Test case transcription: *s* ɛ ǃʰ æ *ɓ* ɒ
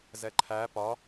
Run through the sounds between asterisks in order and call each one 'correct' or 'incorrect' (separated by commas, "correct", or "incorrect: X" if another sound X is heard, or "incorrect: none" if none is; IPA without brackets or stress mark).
incorrect: z, incorrect: p